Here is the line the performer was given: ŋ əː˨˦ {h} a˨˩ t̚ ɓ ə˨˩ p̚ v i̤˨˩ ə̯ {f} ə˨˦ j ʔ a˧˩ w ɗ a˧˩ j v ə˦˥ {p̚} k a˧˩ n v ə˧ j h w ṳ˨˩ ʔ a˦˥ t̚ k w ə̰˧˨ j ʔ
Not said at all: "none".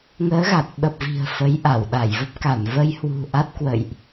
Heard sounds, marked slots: ɣ, f, p̚

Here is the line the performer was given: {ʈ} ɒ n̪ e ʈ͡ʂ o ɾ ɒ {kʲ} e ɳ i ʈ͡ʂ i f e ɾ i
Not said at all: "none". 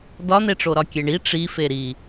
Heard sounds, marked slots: d, kʲ

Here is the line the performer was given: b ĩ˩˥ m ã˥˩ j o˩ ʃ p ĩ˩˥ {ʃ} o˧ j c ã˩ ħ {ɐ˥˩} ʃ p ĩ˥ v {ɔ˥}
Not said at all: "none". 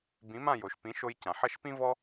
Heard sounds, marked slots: ʃ, ɐ˥˩, ɔ˥

